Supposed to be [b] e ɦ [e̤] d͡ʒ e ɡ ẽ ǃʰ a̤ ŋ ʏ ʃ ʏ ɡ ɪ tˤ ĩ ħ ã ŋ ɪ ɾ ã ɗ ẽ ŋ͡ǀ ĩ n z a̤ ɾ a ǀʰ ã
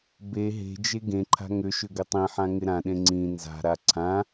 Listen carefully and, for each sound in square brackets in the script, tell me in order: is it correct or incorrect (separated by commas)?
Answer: correct, correct